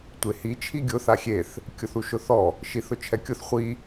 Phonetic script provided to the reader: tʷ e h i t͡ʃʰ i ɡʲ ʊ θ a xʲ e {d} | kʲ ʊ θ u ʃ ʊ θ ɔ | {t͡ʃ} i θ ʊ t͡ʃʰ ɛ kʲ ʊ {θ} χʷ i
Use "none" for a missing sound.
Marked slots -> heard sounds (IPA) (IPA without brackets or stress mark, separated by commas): θ, ʃ, θ